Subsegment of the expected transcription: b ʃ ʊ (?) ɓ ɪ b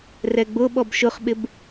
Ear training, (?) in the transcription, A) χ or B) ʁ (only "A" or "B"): A